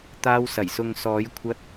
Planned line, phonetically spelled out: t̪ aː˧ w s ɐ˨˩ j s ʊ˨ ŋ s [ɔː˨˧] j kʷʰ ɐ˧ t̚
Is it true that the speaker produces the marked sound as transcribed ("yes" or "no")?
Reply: yes